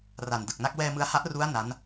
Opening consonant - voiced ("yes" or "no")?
yes